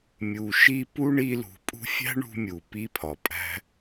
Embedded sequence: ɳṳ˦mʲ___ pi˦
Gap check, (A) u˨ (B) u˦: A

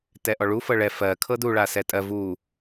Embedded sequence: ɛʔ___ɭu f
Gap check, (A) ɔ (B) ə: A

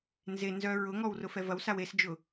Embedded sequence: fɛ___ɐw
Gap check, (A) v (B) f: A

